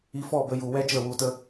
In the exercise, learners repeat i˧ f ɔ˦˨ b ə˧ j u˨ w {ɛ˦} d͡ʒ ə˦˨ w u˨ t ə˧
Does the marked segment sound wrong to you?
no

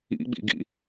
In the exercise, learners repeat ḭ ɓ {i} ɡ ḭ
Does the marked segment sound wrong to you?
yes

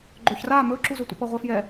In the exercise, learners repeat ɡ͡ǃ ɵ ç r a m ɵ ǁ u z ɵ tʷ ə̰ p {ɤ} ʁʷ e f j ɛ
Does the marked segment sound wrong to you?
no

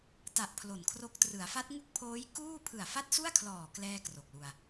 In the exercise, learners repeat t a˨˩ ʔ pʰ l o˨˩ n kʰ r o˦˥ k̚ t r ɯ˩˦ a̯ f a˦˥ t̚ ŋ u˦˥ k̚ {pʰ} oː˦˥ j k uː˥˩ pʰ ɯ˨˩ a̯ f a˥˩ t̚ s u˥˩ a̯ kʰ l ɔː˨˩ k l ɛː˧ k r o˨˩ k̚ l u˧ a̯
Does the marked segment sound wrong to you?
no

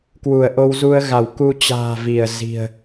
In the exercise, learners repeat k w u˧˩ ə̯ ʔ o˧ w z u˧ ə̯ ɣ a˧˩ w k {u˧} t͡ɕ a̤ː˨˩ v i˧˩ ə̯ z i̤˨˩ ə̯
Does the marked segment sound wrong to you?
no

